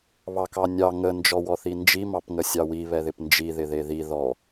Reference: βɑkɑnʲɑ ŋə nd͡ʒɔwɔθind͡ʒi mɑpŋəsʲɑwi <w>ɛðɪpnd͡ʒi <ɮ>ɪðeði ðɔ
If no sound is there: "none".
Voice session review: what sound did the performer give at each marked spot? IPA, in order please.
β, ð

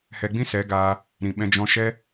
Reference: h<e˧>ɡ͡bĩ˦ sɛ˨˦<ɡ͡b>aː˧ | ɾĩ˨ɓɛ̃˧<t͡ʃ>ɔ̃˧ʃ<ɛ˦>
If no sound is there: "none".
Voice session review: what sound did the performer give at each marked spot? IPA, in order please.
ɛ˧, ɡ, d͡ʒ, ɛ˦

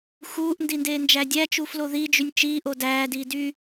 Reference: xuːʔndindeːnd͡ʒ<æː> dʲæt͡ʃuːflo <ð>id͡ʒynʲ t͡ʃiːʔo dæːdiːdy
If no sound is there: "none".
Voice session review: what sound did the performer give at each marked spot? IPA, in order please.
æ, ð

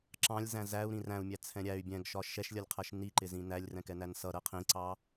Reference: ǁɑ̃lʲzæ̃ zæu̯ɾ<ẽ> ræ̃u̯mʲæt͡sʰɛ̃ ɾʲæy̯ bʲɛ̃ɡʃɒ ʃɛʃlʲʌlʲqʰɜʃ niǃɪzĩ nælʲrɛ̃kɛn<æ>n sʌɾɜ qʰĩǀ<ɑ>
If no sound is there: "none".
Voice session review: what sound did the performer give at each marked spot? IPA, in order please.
ĩ, æ, ɑ

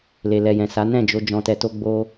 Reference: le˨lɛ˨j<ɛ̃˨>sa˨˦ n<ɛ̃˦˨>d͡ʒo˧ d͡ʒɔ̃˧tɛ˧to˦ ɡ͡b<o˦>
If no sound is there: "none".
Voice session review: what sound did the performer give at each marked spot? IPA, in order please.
ɛ̃˨, ɛ̃˦˨, o˦

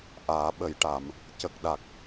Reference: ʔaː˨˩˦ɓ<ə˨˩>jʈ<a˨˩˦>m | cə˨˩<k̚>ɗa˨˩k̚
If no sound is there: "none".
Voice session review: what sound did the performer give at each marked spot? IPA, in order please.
ə˨˩˦, a˨˩˦, k̚

